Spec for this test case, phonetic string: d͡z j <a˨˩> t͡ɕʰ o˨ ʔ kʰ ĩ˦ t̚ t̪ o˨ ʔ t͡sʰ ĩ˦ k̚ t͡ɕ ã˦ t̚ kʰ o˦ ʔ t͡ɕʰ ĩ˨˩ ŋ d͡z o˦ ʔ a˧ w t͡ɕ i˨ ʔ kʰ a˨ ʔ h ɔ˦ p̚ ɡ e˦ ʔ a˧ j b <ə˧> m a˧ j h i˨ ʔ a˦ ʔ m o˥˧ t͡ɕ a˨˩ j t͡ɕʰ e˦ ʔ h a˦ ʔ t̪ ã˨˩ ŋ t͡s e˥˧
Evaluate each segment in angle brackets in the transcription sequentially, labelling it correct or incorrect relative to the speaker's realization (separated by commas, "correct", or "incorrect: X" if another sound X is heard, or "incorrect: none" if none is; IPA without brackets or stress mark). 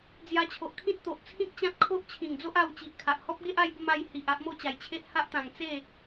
incorrect: a˧, correct